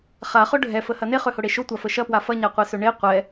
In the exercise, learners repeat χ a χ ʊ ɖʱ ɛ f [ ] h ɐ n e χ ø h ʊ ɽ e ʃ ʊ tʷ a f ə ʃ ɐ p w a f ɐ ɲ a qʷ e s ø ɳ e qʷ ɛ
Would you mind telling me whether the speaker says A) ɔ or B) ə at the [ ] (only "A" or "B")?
B